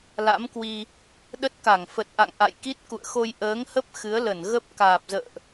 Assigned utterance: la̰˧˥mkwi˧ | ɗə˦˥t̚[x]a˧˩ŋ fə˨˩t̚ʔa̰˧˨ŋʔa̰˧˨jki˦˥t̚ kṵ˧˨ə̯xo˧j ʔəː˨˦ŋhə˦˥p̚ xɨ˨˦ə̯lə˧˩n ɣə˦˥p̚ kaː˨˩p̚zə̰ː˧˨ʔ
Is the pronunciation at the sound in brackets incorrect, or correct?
incorrect